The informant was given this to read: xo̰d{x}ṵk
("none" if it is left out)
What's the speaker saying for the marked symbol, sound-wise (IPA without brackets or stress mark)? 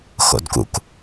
k